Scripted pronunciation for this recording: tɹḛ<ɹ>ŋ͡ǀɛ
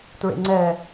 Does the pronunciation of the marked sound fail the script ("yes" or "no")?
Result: yes